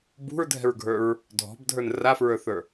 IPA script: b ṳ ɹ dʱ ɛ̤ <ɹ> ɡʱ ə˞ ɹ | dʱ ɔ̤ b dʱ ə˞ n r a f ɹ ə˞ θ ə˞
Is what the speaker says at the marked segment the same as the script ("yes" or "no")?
yes